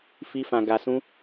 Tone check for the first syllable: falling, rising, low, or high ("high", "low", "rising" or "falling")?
high